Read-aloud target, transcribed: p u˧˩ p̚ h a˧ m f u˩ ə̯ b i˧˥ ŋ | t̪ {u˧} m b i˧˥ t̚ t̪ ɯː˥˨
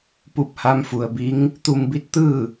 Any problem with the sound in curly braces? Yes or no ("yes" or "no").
no